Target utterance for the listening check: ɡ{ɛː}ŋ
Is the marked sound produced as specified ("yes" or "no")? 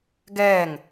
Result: yes